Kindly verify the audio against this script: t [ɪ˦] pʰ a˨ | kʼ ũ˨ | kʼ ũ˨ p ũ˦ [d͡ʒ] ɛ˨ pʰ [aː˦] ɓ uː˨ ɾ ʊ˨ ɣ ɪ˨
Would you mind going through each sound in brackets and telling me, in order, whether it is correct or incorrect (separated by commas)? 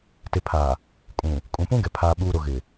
incorrect, incorrect, incorrect